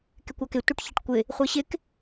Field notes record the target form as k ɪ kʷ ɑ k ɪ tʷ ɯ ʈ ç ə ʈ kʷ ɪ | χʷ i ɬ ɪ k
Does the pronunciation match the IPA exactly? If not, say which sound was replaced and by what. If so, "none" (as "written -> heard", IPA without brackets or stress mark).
ɬ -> ɕ